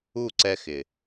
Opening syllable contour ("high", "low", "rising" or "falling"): falling